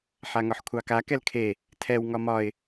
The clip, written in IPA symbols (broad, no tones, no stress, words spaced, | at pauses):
ħaŋɒħkʷʰɑka kɛlkʰe | tʰɛw ŋɒmɒɪ̯